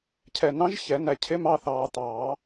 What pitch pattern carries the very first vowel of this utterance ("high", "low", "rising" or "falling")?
low